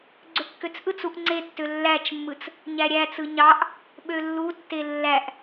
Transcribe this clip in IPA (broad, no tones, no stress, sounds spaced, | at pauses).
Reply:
ɡ͡ǀ ø kː ø t͡s ʔ ɯ t͡s u ʔ ŋ͡ǀ e tː ø lː æ t͡ʃ mː ɯ t͡s | ɲ æ ɾʲ æ t͡s ɯ ɲ ɑ ʔ | ɓ ø lː u tː e lː æ ʔ